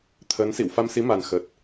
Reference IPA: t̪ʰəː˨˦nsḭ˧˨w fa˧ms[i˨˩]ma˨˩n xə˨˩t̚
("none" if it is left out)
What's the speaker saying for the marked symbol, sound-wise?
i˨˦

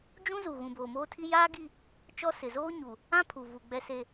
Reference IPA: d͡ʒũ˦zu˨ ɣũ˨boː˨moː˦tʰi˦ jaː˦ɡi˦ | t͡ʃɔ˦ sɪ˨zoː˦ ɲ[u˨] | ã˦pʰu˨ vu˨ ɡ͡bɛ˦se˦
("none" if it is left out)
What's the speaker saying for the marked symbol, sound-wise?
u˨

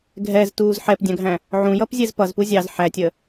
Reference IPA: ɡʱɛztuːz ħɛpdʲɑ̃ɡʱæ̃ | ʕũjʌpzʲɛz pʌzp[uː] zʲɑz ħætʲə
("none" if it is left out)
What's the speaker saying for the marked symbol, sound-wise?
u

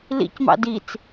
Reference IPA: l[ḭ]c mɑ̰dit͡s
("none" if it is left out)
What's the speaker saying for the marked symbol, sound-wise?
ḭ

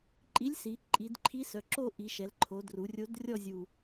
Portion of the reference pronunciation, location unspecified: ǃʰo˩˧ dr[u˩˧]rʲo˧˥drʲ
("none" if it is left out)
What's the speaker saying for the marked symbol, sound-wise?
u˩˧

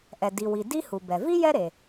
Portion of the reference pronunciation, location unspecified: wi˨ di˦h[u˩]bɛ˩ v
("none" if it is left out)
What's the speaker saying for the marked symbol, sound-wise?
u˩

